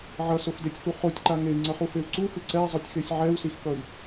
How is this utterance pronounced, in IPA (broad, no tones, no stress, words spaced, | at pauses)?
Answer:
ʕʌsofdetʲfu χotʲǃa ŋei̯ŋ͡ǀʌχufeu̯ ǀufɯ ǀɛi̯zˤotʲxesʲ ʕɛu̯sixkʌi̯